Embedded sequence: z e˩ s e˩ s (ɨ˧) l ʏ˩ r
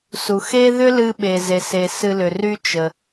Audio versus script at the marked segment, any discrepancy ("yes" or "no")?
no